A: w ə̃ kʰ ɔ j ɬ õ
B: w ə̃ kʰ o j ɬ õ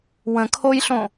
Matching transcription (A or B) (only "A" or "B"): B